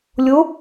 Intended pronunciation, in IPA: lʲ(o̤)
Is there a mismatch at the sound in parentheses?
yes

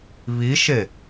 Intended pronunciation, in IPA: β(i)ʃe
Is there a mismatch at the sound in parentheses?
no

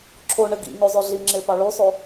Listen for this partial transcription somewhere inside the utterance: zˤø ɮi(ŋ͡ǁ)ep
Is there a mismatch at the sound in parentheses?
no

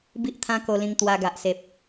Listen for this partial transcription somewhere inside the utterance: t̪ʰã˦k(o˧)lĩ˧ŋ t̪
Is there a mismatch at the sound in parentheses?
no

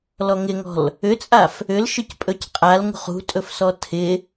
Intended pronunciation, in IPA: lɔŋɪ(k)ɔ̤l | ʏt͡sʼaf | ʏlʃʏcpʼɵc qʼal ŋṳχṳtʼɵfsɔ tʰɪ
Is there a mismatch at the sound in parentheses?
yes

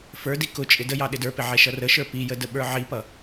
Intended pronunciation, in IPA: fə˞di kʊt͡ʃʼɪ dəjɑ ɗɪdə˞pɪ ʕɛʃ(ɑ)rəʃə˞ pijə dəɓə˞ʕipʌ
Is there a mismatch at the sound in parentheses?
yes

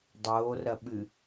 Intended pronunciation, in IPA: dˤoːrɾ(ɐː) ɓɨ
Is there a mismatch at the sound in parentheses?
yes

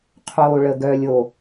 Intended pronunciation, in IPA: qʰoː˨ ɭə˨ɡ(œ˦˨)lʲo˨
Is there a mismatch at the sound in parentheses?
yes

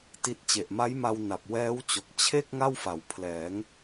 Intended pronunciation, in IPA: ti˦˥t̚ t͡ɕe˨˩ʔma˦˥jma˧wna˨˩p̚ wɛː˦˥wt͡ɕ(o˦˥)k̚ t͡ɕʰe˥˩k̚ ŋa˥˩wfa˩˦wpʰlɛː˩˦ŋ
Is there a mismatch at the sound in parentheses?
yes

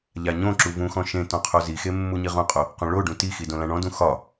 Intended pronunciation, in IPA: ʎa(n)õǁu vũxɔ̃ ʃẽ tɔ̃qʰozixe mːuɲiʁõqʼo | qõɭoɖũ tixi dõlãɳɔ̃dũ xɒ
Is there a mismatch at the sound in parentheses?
yes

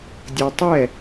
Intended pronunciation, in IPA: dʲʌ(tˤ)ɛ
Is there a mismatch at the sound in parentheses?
no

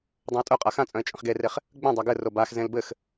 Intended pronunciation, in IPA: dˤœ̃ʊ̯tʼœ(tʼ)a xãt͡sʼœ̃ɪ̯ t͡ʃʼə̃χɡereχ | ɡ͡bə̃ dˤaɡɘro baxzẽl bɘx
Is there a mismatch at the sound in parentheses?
yes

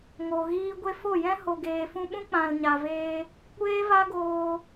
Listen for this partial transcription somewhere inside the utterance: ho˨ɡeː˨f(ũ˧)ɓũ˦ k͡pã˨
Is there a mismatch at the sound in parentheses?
no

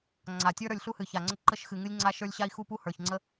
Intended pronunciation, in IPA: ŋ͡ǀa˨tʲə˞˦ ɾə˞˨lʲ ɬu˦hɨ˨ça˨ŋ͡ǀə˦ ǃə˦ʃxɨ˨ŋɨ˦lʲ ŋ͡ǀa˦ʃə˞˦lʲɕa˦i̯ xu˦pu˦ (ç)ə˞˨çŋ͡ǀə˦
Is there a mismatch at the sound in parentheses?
yes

